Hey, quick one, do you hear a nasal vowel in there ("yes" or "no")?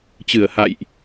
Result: no